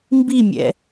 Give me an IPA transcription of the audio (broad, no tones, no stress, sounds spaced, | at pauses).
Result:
m b i mʲ ɛ̰